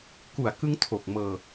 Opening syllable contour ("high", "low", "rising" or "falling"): low